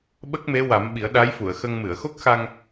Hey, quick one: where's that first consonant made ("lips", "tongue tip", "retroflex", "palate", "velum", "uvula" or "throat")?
lips